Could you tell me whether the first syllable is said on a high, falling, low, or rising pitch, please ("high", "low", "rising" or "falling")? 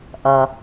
low